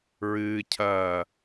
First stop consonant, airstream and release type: aspirated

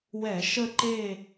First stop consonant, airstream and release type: click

